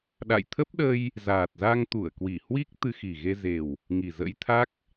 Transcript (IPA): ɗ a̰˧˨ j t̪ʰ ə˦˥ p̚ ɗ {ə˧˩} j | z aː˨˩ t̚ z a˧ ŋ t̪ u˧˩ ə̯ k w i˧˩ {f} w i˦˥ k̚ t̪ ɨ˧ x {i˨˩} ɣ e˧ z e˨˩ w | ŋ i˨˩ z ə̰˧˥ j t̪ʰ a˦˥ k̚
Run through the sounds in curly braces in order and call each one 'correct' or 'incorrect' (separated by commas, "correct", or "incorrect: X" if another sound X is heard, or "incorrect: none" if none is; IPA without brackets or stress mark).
incorrect: ə˧, incorrect: h, correct